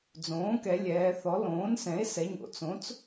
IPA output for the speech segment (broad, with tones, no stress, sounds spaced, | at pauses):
d͡z õː˩˥ k ɛ˩˧ lʲ ɛː˩˧ θ ɔ˩˥ l õː˩˥ n s ɛ̃˩˥ e̯ s ɛ˩˧ ɲ o̰˩˧ t͡s õ˩˥ t͡s